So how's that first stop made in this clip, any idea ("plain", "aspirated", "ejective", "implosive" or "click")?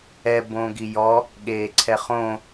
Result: plain